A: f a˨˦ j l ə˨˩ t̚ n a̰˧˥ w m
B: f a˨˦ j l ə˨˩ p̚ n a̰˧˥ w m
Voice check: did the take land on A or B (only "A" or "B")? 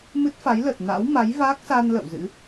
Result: A